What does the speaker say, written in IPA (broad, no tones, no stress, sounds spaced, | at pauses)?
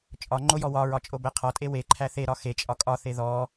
t͡ʃʼ ɒ ŋ͡ǃ o j ɔ w ɒ ɹ ɒ t͡ʃʼ o b æ qʰ ɒ tʼ e w e ǃʰ æ θ e ɾ ɒ x e t͡ʃʼ ɒ kʼ ɒ θ e ð ɔ